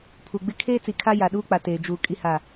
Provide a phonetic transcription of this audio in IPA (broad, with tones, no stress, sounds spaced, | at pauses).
pʰ u˨ ɡ͡b ɪ˦ kʰ eː˦ t͡s i˨ kʰ a˦ j a˨ ɗ uː˦ k͡p a˨ t eː˨ d͡ʒ uː˨ kʼ i˦ h a˦˨